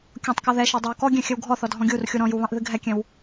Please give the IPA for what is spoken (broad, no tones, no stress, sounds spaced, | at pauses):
kʲ ɔ̃ tˤ k ɔ ð ɛ ʃ ɑ dˤ ɑ w k ɔ ɡʲ ɛ̃ xʲ ɘ w ɡʱ ɔ θ ɔ dʱ ɔ̃ ɡʲ u r xʲ u ɾ ɔ̃ j u β ɑ̃ ʔ ð ɨ ɡʱ ɛ kʲ ɛ̃ w